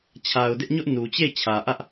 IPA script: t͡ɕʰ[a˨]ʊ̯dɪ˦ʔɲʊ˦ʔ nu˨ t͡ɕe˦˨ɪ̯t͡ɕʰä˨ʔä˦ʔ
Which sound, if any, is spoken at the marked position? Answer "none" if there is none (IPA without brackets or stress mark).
a˨